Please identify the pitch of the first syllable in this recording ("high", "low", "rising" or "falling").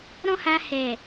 high